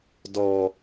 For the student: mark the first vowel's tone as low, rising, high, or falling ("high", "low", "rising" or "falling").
low